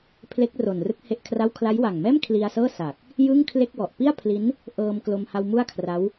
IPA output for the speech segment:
pʰ l e˦˥ k̚ r o˨˩ n r ɯ˦˥ k̚ h e˥˩ ʔ kʰ r a˥˩ w kʰ l a˦˥ j w a˨˩ ŋ m ɛː˥˩ m kʰ l i˧ a̯ s ɤː˥˩ s a˨˩ k̚ | j ɯ˥˩ ŋ kʰ l e˥˩ k̚ w ɔ˨˩ ʔ p i˥˩ a̯ pʰ l i˦˥ n | ʔ ɤː˧ m k l o˧ m h a˧ w m u˥˩ a̯ kʰ r a˦˥ w

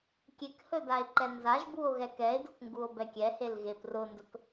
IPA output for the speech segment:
kʲ e k h ɵ d a e̯ ǃ ɛ n z a ʒ b u o̯ ɣ ɛ k ɛ e̯ d ʊ k ŋ ɡ u o̯ b ɛ kʲ ɛ h e l ɣ e p r ʊ n d ɵ k

